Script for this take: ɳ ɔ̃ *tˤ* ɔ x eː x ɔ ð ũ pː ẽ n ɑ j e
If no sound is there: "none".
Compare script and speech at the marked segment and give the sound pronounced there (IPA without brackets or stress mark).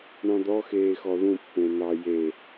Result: d̪